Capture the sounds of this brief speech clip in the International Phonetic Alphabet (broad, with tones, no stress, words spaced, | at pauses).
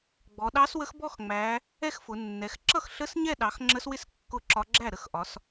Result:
ɡ͡bɔ˩˧ɗɑ˧˥swə˧˥x bɔ˥˧xŋ͡mæ˩˧ | ɛ˥˧xfʊ˩˧ nːɛ˩˧x ǁʌ˥˩xɬə˧˥s ɲɛ˥˧ɗɑ˩˧x ŋ͡ǁə˧˥swɪ˥˩s kːʊ˥˧ǁɒ˧˥ ɡ͡ǁæ˥˩ɾə˥˩xʔɒ˩˧s